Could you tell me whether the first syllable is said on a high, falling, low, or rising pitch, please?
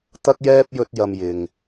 high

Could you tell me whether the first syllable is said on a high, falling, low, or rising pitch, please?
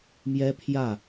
high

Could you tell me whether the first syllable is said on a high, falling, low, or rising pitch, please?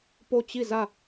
falling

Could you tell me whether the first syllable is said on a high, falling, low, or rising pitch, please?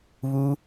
high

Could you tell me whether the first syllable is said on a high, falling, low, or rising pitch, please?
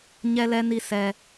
high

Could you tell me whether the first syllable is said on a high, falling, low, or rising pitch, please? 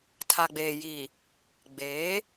low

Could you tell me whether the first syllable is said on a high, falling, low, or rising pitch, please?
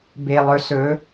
low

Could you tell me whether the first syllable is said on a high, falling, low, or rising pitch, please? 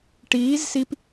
rising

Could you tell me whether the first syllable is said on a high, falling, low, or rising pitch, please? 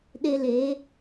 high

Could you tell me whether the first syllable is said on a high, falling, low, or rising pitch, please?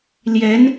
rising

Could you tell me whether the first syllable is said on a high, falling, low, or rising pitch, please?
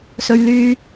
low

